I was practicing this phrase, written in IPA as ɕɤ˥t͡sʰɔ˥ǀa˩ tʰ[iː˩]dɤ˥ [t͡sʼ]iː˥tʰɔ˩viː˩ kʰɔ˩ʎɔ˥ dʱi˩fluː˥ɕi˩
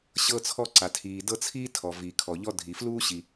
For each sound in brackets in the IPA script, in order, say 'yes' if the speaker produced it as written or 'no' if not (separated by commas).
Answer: yes, no